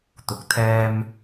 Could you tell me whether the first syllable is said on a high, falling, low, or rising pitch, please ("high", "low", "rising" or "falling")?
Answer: low